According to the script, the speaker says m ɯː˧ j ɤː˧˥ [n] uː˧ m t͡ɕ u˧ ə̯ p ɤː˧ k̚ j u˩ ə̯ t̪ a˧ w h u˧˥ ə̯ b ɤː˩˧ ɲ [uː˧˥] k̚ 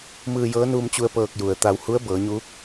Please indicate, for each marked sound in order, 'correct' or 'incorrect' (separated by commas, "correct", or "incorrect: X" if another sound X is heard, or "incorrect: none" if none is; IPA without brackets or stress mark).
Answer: correct, correct